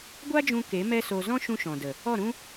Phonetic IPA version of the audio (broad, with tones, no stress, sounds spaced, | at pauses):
ɡʷ a˦ d͡ʒ ũ˧ k e˨˦ m ɛ˦ s o˧ z ɔ̃˦ ʃ ũ˧ ʃ ɔ̃˨ d ə˨ | ɔ˦˨ ɾ ũ˦